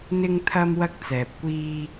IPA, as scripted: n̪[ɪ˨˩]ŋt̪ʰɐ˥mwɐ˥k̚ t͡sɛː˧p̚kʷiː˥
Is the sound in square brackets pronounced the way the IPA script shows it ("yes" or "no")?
no